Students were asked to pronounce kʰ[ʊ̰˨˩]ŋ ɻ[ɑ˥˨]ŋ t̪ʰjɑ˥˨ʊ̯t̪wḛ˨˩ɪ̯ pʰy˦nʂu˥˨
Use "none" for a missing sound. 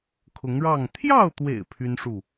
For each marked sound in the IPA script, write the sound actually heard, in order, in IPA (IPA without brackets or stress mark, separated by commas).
ʊ˨˦, ɑ˥˨